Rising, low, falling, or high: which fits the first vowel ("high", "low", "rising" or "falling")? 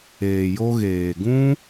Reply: low